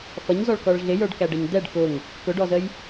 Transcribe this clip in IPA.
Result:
f ʌ ɲ z ɔ ɭ k ɔ ɭ ɮ ɪ j ə˞ ɖ k æ ɖ ɛ ɲ d̪ ɛ ɖ k ʊ ŋ | k ʊ ɖ ɔ z ə j

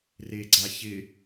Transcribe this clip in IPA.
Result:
r e ɡ͡ǀ a ç ɪ

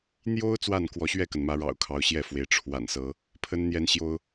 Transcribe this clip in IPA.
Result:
n̪ j o˦ ʊ̯ t͡s w a˥˨ n k w ɔ˨˦ ɕ ɥ ɛ˥˨ k ə˩ n m ä˨˦ ɻ ɑ̰˨˩ ʊ̯ kʰ ɑ˨˦ ʊ̯ ɕ j ɛ˥˨ f w e˨˦ ɪ̯ ʈ͡ʂʰ w a̰˨˩ n s ɤ˨˦ | pʰ ə˦ n n̪ j ɛ˦ n ɕ j o˦ ʊ̯

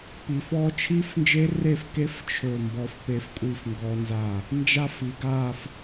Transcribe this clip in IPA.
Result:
p i˩˧ f ɔ˦˥ t͡ʃʰ i˦˥ f n d͡ʒ e˦˥ r e˥˨ f k e˦˥ f t͡ʃʰ ɵ˥˨ m b ɔ˦˥ f p e˦˥ f kʷʼ i˥˨ f ŋ ɡ ɔ˦˥ n z a˥˨ | n d͡ʒ a˥˨ f i˩˧ ɡ a˥˨ f

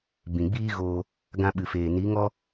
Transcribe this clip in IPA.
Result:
b ĩ˨ ɡ͡b iː˦ ɣ oː˧ | ɡ ã˧ ɓ ɨ˨ f eː˨ n i˨˦ ŋ ɔ˦

